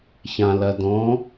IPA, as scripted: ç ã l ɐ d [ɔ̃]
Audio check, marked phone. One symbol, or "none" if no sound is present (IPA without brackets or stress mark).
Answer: ɔ̃